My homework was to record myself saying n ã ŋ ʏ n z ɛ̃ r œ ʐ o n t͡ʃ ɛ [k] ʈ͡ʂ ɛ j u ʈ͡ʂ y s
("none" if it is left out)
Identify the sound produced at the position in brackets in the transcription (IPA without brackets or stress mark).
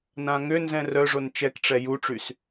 k